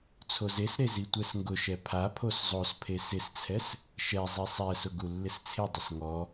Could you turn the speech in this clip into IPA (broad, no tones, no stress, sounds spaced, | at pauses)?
t͡sʰ o z e s ɾ e z i tʷ ɛ s ŋ ɡ ʊ ʃ ɛ pʰ a pʰ o s zˤ o s pʰ e s ɪ s t͡sʰ ɛ s | ʃ ɛ zˤ i sˤ ɛ s ʊ ɡ u lː ɪ s t͡sʰ ɪ dˤ ɪ s ŋ ɔ